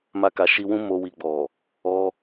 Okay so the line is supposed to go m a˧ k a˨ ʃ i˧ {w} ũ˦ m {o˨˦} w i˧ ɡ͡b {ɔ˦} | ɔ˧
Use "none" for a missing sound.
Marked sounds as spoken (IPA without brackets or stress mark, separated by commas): w, o˦, ɔ˨